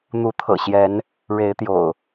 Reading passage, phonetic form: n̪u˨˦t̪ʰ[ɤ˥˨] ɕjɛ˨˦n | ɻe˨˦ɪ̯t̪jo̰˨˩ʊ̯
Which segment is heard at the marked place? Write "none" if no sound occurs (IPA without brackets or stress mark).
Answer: ɤ̰˨˩